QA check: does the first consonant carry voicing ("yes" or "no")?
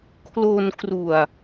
no